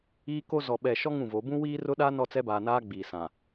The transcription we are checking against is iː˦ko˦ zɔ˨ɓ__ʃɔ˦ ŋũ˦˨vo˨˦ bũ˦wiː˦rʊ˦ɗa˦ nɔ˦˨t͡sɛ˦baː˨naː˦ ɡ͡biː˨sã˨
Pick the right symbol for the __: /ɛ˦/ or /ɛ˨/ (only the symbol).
ɛ˨